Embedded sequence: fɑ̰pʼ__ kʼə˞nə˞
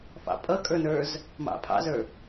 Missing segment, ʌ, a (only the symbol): ʌ